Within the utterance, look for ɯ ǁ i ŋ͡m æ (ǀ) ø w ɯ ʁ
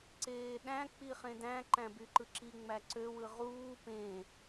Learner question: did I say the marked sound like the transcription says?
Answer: yes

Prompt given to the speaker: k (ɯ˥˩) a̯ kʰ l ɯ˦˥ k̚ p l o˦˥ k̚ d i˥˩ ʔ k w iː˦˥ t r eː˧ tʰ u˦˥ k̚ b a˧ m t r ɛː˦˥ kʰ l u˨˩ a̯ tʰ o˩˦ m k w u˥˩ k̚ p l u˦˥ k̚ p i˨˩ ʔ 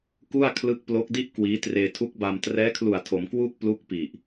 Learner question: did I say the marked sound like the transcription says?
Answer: no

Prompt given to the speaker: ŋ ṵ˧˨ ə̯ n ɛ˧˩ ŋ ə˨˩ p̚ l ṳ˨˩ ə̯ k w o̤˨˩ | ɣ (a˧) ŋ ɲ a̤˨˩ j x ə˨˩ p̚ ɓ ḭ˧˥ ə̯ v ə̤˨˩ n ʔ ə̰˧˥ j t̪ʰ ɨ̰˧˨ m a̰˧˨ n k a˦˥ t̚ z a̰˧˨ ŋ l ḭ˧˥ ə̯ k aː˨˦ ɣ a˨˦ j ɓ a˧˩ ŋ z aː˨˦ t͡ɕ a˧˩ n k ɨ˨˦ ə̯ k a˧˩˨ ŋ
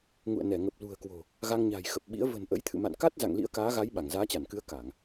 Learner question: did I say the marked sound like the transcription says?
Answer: yes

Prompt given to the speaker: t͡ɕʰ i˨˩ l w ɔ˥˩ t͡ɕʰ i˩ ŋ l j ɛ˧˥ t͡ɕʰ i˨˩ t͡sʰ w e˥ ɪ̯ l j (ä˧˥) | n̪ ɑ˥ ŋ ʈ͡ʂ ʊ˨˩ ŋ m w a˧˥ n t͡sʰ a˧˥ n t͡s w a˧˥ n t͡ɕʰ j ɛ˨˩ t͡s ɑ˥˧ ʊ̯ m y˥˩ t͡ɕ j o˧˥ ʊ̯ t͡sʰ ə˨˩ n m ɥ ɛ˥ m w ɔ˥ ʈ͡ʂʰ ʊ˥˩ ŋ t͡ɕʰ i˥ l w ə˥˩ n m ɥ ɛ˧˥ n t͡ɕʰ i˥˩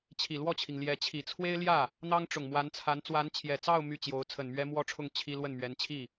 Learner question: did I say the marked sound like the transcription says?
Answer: no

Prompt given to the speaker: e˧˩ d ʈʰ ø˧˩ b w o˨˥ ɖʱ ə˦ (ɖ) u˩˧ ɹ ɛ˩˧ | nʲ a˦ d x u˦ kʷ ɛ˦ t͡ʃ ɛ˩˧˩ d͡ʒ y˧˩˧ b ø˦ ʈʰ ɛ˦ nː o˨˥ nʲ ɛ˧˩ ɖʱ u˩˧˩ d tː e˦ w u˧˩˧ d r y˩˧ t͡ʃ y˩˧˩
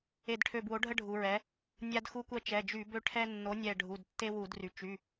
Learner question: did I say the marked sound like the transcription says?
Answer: no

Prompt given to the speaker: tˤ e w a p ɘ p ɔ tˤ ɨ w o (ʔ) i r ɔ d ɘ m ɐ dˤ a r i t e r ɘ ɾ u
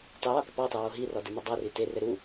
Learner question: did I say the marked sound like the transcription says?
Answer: no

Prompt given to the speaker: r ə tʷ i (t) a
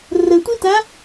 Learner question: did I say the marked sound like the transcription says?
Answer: yes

